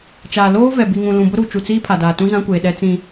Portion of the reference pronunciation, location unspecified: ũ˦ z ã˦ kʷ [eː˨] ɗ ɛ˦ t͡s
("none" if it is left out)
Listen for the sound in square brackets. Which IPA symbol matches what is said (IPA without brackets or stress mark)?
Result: eː˨